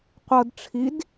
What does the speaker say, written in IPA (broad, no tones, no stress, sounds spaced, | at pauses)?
qʷ ɤ d ʈ͡ʂʰ i d